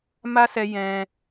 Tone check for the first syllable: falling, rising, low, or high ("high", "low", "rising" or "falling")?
high